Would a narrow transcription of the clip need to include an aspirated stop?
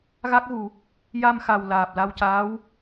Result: no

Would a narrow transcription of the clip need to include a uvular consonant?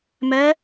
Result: no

